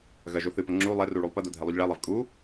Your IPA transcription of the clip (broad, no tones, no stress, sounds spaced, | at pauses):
ɣ ɐ ʒ o θ ɨ p ɐ ŋ͡ǁ u lˠ ɛ r u ɭ u lˠ p ɐ d o dʱ ɛ lˠ u ʎ ɭ ɛ lˠ ɛ v kʼ u